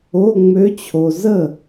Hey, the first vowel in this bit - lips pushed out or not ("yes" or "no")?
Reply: yes